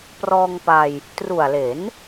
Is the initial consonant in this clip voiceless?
yes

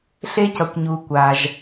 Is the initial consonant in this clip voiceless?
yes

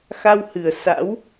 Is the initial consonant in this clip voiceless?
yes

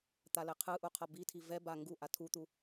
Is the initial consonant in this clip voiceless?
yes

